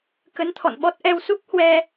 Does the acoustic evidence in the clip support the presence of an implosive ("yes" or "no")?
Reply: yes